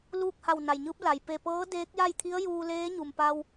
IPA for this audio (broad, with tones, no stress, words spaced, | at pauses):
luː˥˨k̚ha˧˩w na˩jɲɯː˧˥p̚ la˩j pe˧˩pɤː˧˥ deː˧˥k̚ja˥˨jt̪ʰi˧˥ə̯ juː˧leː˧˥ ɲu˩m pa˧w